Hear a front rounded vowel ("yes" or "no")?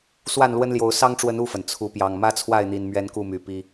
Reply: yes